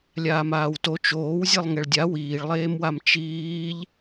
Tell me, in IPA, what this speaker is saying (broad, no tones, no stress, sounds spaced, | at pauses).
lʲ aː m aː w t o t͡ʃ oː w zʲ e lˠ ŋ ɛ ɭ dʲ a w iː ɭ lˠ eː m w a m t͡ʃ iː ʎ